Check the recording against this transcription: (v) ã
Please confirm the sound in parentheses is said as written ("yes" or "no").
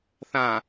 no